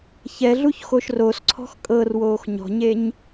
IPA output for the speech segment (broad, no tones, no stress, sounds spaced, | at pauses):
ç ɛ ɮ u ç x o ʃ r o s ǀʰ ɔ̤ x kʼ ɤ r w oː x ɲ ɔ̤ ɲ e ɲ